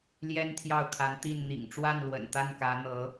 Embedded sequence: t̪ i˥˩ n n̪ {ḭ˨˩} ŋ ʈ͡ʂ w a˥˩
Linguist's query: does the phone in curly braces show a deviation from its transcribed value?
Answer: no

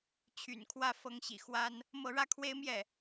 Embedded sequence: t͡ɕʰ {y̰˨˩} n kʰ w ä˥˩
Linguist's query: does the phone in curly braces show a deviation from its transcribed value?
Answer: no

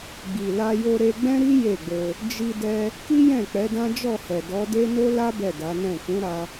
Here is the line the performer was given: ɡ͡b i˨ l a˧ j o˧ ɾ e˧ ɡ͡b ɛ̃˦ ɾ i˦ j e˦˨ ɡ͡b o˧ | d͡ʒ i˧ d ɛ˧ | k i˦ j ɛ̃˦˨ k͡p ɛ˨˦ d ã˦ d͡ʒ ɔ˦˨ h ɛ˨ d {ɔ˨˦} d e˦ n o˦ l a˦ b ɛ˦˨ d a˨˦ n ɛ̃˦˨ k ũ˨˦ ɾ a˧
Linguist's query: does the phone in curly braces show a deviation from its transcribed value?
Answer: no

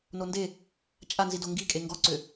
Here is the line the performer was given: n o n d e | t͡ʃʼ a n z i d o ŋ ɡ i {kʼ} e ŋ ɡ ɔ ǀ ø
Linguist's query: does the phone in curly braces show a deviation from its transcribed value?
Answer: no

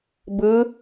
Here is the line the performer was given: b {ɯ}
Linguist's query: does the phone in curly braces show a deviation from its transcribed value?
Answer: no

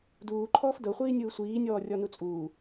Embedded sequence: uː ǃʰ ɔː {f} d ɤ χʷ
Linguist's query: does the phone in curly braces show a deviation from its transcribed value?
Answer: no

